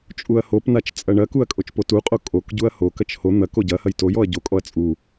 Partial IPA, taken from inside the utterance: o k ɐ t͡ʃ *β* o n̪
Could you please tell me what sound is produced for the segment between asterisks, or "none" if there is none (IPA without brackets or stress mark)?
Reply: h